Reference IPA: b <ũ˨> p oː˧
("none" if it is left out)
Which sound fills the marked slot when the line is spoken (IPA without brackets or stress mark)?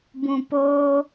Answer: ũ˨